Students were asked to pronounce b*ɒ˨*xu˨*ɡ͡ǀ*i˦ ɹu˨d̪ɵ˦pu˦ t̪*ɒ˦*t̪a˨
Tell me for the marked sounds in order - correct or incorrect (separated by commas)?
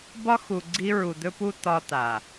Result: incorrect, correct, correct